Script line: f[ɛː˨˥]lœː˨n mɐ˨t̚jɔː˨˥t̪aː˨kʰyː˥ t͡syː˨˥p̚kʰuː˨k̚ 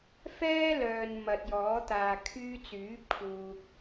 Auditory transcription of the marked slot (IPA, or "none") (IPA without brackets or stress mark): ɛː˥